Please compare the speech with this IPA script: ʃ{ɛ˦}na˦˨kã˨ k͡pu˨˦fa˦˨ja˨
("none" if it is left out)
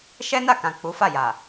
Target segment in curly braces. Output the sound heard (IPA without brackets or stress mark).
ɛ˦